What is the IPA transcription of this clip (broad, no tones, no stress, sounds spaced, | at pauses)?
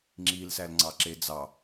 ŋ͡ǁ i l s æ l ŋ͡ǀ ɑ ǁ e d͡z ɑ